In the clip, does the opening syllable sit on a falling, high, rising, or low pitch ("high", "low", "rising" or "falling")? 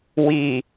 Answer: low